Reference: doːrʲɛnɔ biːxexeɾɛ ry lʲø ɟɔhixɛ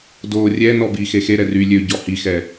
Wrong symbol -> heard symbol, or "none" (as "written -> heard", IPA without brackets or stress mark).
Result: none